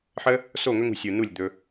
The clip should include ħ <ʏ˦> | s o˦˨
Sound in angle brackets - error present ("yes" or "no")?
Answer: yes